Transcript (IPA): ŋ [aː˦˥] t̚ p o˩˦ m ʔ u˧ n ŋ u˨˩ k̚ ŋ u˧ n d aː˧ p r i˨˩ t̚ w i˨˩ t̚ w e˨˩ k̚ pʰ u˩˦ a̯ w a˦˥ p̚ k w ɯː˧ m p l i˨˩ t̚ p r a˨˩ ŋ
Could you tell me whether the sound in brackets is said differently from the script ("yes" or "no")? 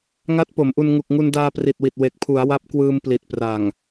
yes